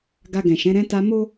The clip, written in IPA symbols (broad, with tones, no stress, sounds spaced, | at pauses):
ɡ a˧ ɡ ɛ̃˨ ʃ ɛ̃˨˦ ɾ ɛ̃˧ t a˧ m o˦